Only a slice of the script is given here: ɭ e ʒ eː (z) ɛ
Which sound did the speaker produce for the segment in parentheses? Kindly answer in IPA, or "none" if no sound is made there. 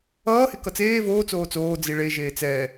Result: t͡s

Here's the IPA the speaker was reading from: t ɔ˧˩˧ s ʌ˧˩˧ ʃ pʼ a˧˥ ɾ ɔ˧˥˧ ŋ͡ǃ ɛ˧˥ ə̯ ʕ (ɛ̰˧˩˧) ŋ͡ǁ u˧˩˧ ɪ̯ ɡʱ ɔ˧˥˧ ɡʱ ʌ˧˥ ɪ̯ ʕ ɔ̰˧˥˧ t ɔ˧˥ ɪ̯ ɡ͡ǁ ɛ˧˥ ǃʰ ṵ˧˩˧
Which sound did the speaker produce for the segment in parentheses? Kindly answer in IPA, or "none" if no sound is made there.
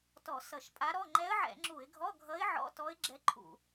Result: ɛ̰˧˩˧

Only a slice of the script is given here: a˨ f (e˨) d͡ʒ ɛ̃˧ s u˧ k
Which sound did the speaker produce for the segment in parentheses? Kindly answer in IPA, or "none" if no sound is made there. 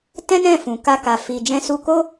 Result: i˨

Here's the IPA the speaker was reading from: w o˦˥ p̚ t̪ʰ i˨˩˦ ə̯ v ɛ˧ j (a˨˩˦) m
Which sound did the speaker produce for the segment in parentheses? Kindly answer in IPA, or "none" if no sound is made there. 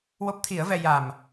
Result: a˨˩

